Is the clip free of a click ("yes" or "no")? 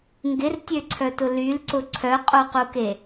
no